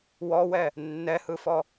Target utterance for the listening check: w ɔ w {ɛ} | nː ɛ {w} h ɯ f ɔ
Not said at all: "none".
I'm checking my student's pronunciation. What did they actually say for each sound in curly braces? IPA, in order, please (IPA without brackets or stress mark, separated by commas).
ɛ, none